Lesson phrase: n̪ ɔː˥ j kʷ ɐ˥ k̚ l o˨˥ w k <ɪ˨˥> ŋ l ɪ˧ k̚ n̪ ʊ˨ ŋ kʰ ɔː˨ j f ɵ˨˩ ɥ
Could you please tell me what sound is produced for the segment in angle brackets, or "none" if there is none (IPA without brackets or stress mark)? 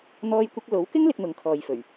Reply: ɪ˥